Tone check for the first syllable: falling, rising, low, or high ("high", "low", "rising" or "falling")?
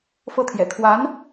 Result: falling